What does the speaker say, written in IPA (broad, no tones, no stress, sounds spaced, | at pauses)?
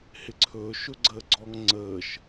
h ɪ ǀʰ ɵː ʃ ɵ ɡ͡ǀ əː ɡ͡ǀ ɔ ŋ ŋ͡ǀ əː ʃ